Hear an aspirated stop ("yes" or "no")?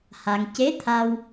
yes